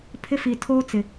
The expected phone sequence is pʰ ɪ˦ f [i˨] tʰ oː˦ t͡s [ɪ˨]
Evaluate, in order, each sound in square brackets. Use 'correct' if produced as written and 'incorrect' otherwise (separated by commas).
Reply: correct, correct